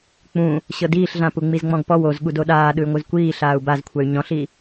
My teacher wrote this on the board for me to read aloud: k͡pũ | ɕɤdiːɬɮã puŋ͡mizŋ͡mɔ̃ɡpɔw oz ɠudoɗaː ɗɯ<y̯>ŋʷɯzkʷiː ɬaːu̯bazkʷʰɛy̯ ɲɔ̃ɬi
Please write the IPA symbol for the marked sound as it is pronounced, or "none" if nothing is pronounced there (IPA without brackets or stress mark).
y̯